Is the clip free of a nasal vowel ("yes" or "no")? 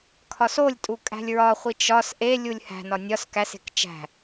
yes